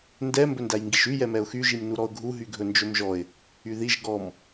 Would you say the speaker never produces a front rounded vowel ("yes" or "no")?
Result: no